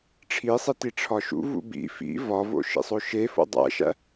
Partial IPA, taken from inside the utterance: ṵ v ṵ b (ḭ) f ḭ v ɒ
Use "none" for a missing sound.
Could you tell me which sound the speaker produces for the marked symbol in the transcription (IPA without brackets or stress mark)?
ḭ